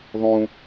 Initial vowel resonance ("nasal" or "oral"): nasal